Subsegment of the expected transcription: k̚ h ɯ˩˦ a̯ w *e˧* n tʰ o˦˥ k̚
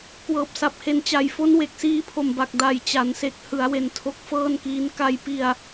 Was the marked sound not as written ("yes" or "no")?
no